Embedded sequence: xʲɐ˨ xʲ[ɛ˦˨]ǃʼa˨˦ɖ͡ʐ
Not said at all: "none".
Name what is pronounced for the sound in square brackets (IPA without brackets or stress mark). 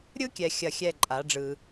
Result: ɛ˦˨